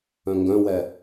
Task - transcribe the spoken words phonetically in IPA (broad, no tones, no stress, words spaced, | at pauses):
œ̃ŋɡœ̃wɛ